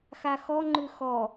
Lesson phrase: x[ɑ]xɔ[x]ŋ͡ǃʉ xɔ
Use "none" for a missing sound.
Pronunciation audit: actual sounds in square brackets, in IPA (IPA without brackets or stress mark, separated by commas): a, none